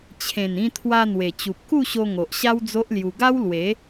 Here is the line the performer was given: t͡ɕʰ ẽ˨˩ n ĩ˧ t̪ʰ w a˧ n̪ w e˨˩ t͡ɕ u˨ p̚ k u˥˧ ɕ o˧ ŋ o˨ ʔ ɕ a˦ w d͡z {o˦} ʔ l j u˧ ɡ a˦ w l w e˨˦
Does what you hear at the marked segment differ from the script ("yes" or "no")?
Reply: no